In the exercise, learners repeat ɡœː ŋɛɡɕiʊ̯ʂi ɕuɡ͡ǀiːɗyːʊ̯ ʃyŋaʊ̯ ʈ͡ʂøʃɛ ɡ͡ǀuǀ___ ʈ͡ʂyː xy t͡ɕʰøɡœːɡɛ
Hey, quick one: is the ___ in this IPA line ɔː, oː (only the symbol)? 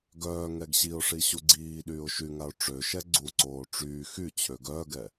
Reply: oː